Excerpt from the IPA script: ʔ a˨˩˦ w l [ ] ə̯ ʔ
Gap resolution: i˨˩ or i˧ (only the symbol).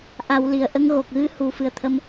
i˨˩